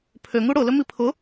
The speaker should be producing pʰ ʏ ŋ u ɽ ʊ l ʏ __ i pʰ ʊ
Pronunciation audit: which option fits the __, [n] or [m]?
m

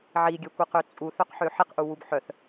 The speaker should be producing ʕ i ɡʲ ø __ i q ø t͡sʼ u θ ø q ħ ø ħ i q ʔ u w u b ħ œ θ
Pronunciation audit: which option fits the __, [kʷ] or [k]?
kʷ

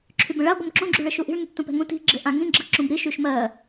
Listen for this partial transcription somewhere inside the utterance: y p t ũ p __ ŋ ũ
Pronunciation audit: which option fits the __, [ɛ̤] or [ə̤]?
ɛ̤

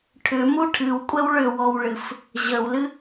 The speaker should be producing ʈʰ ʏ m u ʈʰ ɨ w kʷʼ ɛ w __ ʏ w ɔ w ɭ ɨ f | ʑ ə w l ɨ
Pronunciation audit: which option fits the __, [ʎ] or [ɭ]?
ɭ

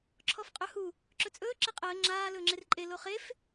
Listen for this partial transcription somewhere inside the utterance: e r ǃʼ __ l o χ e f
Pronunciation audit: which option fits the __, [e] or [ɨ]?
e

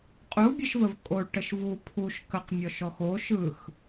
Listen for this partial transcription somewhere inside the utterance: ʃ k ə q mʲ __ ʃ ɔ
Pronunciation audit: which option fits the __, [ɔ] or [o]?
ɔ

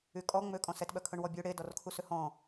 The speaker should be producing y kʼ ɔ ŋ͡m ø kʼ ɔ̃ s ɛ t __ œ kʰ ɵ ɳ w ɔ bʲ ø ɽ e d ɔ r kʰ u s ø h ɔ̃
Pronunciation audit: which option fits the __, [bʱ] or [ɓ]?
ɓ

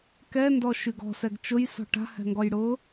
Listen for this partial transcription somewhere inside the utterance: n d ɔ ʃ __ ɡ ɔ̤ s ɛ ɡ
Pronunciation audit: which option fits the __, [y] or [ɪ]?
y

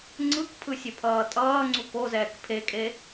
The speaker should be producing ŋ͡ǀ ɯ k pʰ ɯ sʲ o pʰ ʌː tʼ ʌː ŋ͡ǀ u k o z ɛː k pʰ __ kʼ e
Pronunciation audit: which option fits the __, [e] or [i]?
e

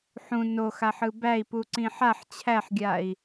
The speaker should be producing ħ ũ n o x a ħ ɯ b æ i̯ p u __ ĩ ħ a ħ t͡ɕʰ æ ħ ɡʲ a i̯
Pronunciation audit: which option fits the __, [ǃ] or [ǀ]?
ǀ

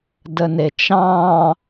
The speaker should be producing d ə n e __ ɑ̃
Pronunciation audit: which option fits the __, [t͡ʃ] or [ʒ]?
t͡ʃ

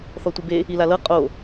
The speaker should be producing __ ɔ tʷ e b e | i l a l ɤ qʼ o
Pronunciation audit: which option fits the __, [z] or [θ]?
θ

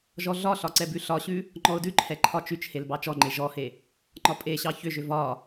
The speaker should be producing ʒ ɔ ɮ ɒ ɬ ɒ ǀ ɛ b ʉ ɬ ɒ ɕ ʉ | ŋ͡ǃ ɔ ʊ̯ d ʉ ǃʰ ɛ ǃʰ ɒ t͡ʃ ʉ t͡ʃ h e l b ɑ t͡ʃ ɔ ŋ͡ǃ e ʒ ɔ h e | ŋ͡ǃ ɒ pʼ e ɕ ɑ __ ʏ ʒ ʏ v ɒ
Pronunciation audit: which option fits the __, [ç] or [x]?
ç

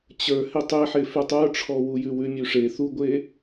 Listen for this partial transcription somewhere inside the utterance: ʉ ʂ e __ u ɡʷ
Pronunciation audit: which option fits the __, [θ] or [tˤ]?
θ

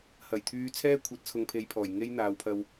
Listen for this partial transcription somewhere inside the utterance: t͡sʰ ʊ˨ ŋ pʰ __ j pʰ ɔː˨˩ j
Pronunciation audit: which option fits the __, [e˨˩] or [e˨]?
e˨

